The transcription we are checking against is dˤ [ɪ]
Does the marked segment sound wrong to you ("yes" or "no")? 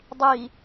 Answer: yes